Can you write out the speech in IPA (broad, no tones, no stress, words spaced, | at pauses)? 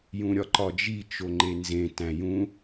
jũɾʲɒǃɒd͡ʒi t͡ʃoŋ͡ǃenzẽ tæ̃jũ